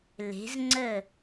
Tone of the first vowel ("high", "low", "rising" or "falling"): rising